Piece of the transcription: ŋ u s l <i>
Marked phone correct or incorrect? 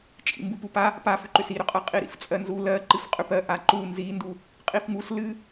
incorrect